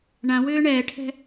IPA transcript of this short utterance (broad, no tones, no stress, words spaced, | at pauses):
ɳãwʏː ɳɛːʈʰɛ̤